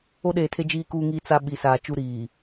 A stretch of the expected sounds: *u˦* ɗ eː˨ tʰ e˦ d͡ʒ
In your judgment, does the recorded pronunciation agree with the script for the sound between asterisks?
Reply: no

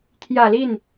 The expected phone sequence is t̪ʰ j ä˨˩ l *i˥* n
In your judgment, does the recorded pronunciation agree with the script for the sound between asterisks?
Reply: no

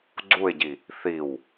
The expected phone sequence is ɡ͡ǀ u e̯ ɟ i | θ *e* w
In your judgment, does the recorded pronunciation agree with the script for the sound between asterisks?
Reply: no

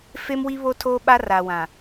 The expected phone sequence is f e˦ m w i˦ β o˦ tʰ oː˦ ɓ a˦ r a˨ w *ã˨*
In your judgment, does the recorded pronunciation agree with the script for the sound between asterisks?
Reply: yes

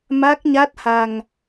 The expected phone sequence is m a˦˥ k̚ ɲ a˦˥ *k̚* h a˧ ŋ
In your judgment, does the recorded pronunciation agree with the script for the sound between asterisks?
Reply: no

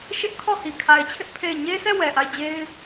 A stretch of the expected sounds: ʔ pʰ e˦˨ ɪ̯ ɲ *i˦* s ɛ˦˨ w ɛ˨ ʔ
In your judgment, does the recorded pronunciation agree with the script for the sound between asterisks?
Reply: no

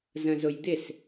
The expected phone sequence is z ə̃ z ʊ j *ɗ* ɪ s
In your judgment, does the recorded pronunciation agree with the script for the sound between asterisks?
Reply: no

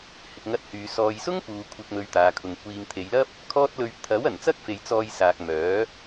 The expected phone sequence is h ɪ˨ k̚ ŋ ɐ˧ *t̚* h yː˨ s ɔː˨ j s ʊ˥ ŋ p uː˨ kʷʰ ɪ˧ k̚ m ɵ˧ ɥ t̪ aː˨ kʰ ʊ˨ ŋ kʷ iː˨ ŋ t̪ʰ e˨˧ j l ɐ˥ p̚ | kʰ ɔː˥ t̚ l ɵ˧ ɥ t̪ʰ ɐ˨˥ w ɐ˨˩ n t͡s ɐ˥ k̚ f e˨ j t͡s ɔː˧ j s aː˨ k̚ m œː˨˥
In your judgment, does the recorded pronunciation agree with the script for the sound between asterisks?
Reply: yes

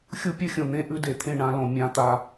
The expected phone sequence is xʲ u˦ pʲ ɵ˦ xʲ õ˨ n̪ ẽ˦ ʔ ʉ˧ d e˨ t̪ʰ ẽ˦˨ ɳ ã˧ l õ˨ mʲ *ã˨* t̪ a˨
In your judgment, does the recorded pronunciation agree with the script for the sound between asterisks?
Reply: yes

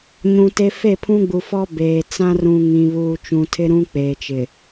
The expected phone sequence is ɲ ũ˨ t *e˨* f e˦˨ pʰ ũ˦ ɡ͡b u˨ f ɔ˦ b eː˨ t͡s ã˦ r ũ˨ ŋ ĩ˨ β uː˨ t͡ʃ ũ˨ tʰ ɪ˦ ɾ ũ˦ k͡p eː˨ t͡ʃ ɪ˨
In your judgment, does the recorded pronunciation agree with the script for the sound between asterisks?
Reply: no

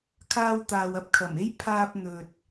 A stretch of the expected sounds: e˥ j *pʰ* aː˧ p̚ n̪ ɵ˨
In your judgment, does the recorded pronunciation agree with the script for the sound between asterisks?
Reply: yes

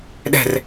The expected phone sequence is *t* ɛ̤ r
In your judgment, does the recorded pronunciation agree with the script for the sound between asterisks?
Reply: no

